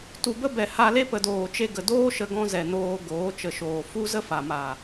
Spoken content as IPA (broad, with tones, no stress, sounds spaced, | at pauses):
t u˨ b ə˦ b ɛ˨ h a˧ l e˦ p ə˨ d oː˨ t͡ʃ e˧ ɡ ə˨ d oː˦ ʃ ə˧ ɡ ɔ̃˧ z ɛ˨ n oː˧ ɡ oː˨˦ t͡ʃ ə˨ ʃ oː˨ f u˦ z ə˦ f a˨ m a˨